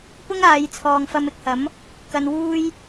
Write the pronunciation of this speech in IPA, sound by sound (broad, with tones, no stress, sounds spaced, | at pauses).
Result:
p ʊ˥ ŋ aː˨˧ j t͡sʰ ɔː˨ ŋ f ɐ˧ m ɪ˧ k̚ h ɐ˨˥ m | k ɐ˧ n w uː˥ j